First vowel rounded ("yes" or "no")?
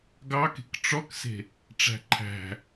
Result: no